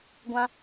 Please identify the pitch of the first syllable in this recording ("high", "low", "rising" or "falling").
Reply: high